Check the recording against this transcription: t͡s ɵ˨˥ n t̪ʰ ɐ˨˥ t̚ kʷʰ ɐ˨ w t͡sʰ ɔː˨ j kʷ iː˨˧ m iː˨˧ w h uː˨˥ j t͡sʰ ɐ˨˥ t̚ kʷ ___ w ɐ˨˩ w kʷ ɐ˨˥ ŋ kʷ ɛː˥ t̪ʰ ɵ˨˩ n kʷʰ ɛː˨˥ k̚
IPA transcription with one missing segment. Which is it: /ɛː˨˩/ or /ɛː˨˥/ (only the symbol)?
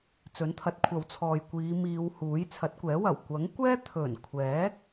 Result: ɛː˨˥